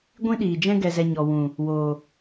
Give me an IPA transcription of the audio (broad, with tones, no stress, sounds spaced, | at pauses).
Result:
ɡʷ ĩ˦ ɗ iː˨ d͡ʒ ɛ̃˦ ɡ ɛ˧ z ɛ˧ ɲ ɔ˨ w ũ˨ | w oː˨